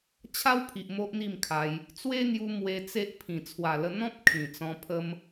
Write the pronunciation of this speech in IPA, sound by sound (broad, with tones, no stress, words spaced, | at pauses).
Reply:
t͡ɕʰa˦wpʰi˨ʔ mo˦ʔn̪i˥˧mkʰa˧j | t͡swe˦n̪ju˧ mwe˧ t͡se˦ʔpʰĩ˨˩ t͡sʰwa˨˩lə˧ n̪ɔ̃˦p̚ kʰĩ˨˩t͡sɔ̃˧ pʰə˦m